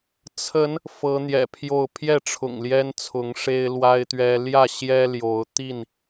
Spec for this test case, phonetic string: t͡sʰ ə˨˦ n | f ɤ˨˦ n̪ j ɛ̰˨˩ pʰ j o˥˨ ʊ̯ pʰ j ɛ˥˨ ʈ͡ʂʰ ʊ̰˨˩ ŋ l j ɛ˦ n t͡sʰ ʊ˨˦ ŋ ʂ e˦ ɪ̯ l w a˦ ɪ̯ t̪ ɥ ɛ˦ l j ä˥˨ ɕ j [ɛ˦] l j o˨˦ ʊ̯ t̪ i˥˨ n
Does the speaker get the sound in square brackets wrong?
no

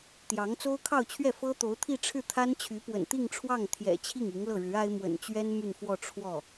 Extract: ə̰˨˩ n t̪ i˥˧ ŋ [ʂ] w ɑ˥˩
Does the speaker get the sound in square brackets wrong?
yes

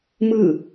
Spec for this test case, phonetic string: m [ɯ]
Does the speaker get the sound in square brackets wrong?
no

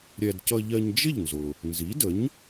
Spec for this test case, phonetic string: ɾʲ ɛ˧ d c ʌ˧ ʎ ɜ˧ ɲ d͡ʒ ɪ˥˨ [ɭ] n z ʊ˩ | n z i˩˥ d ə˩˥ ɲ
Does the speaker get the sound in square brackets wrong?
yes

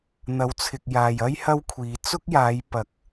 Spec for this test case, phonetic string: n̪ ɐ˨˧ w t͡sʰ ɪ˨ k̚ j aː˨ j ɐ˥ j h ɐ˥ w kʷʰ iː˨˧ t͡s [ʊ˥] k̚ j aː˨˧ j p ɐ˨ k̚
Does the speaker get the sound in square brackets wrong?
no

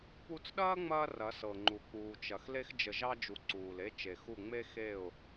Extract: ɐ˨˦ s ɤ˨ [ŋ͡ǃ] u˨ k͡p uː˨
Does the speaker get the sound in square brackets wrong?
no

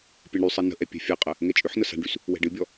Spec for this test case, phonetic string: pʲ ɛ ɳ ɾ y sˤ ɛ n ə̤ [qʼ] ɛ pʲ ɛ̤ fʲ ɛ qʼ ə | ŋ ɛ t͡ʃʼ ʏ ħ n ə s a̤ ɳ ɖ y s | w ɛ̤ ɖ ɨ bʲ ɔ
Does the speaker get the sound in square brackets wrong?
yes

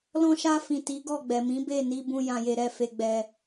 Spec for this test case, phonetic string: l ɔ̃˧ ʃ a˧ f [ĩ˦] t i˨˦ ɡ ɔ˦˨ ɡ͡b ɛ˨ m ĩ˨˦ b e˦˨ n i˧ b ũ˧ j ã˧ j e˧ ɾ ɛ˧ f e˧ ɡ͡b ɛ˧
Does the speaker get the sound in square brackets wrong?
yes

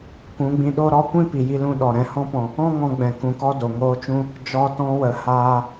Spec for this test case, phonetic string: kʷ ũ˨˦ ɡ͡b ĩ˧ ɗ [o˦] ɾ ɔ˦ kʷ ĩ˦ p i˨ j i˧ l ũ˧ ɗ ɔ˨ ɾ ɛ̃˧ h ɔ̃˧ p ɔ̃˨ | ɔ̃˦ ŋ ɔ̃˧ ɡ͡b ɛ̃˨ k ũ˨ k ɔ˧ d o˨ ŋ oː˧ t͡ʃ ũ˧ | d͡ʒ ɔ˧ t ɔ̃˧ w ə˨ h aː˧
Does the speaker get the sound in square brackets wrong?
no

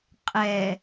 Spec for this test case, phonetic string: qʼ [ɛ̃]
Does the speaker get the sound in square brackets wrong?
yes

